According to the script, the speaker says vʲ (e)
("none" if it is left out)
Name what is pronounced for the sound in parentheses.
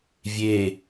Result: e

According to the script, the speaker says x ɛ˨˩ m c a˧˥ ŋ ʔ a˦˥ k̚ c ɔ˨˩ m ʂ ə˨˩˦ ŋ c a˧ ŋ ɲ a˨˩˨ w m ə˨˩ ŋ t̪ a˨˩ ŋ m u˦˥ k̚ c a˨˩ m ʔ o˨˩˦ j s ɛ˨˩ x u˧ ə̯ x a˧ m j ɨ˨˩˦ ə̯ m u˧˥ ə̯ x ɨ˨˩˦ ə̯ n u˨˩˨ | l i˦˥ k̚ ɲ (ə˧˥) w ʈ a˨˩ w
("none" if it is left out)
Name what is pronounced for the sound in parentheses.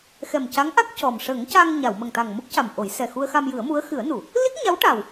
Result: a˧˥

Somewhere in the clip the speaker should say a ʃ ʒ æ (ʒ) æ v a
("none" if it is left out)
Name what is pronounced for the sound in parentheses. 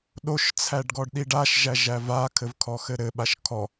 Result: ʒ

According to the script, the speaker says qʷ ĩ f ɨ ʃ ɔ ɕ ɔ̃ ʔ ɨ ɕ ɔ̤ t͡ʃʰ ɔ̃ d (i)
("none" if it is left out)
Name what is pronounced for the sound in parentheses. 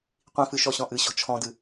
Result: ɨ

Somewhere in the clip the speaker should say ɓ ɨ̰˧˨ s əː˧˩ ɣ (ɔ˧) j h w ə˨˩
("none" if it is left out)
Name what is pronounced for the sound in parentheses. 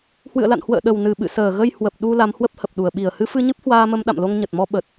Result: ə˧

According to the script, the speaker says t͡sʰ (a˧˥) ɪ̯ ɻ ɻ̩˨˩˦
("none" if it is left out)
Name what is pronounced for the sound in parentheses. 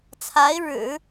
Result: a˧˥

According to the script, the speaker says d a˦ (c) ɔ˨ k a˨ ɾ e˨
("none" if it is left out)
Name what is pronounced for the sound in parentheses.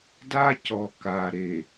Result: c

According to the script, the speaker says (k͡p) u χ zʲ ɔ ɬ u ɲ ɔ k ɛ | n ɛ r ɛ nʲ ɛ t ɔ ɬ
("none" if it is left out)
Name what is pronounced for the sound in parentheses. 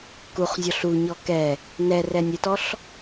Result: k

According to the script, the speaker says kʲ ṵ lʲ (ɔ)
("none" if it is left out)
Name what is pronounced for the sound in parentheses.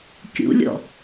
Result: ɔ̰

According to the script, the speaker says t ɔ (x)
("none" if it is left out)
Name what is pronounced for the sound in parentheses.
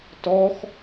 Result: x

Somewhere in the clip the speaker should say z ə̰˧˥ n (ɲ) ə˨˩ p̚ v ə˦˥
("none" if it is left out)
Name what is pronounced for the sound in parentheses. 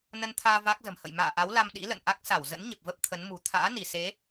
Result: ɲ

